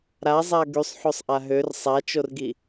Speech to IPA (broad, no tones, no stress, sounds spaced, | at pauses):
ɾ a zˤ a ɡ y sˤ ħ o sˤ ʔ a ɦ ø r sˤ a t͡ʃ o r ɡ i